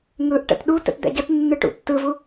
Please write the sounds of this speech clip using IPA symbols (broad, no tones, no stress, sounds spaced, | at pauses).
ŋ ɯ ʔ ʈ ə̰ t ɗ u t ə̰ t d̪ ɛ̰ ɟ ə t nː ɯ ʈ ṵ tː ɯ v u